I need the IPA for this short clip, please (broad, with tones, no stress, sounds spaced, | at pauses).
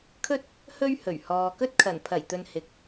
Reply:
kʰ ɵ˥ t̚ | h ɵ˥ ɥ h ɵ˨˩ ɥ h ɔː˨ k ɵ˥ t̚ kʰ ɐ˨˩ n pʰ ɐ˨˩ j t̪ ɵ˨ n h ɪ˨ k̚